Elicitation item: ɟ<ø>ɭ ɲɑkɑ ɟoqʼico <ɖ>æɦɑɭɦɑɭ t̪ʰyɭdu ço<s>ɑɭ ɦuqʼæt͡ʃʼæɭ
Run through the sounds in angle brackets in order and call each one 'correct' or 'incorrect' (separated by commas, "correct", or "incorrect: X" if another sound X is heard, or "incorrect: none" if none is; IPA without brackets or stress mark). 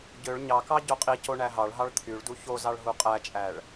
correct, incorrect: ɳ, incorrect: z